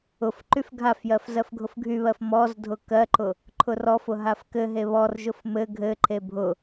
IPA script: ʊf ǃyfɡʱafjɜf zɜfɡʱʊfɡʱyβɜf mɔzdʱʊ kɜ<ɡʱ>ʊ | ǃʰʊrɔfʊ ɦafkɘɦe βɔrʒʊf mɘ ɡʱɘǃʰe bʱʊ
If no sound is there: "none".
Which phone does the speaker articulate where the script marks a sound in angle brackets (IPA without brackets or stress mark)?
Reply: ǃ